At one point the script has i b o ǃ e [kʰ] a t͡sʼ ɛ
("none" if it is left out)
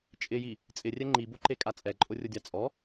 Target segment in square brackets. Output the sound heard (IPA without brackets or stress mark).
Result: kʼ